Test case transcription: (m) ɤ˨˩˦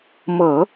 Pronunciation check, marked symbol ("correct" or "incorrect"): correct